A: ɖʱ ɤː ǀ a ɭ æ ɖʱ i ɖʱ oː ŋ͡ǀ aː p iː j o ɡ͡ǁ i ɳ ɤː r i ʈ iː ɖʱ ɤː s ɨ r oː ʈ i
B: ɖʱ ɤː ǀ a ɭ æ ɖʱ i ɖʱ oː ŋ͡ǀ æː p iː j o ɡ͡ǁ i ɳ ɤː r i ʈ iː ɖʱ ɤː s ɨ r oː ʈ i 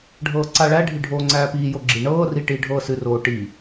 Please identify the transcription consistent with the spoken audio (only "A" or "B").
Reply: B